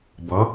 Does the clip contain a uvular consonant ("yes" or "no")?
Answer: no